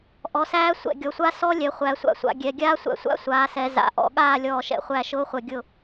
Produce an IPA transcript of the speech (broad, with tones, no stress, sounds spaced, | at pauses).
ʔ ɔ˩˧ s æː˦˥ sʷ ɛ̰˧˩ ɡʲ ɔ˩˧ sʷ a˦˥ s ɔ˦˥ lʲ ɛ˩˧ χʷ æ˩˧ sʷ a̰˧˩ sʷ a̰˩˧ ɡʲ ɛ˩˧ ɡʲ aː˦˥ sʷ æ̰˧˩ sʷ a̰˦˥ sʷ aː˩˧ s ɛ˩˧ z a̰˩˧ ʔ ɔ̰˧˩ ɠ aː˥˩ lʲ ɔː˧˩ ʃ ɛ̰˧˩ χʷ æ˧˩ ʃ ʊː˦˥ χʷ ɛ˧˩ ɡʲ ʊ˥˩